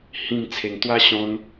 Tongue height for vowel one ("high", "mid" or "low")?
high